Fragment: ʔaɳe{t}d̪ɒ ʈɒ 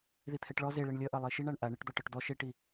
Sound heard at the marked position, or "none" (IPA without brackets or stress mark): ʈ